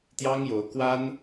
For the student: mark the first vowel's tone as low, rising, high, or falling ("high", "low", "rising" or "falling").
high